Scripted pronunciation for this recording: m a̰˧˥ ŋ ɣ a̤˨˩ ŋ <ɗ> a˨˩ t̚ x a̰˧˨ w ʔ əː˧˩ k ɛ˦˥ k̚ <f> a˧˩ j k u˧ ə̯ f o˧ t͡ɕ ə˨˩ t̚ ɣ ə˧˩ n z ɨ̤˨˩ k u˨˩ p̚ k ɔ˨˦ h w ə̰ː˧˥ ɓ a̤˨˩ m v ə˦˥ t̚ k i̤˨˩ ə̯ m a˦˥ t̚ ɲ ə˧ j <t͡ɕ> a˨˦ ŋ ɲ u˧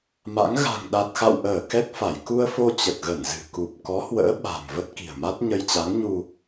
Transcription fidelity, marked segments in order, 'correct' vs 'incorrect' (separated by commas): correct, correct, correct